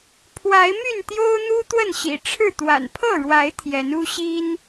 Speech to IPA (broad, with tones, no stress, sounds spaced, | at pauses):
pʰ w a˨˦ ɪ̯ m y˥˨ n t̪ j o˦ ʊ̯ n̪ u˦ t̪ w ə˥˨ n ɕ ḭ˨˩ ʈ͡ʂʰ ɻ̩˥˨ t̪ w a̰˨˩ n pʰ ɤ˥˨ ɻ w a˨˦ ɪ̯ t̪ʰ j ɛ˨˦ n u˦ ɕ i˦ n